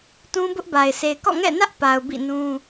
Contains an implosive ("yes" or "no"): no